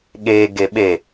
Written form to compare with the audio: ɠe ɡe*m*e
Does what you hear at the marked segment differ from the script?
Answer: yes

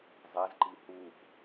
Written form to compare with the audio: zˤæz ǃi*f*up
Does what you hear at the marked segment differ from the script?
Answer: yes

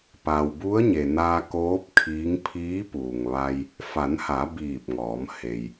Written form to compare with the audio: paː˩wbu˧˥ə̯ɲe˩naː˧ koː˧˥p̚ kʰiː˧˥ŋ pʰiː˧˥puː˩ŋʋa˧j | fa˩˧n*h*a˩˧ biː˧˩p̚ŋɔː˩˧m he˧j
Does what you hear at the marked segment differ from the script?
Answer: no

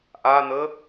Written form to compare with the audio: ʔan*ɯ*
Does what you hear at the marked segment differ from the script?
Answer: yes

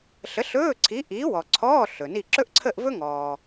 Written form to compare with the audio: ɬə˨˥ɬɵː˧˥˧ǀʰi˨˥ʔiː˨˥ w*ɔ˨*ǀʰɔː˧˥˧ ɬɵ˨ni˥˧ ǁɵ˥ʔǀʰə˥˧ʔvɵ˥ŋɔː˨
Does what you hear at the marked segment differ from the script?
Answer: no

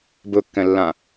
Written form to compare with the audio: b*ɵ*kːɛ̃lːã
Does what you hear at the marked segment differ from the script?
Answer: no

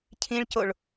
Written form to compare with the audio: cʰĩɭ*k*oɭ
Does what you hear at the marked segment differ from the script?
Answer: yes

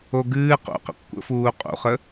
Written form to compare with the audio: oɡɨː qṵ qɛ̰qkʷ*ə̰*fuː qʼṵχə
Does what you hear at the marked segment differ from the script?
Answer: no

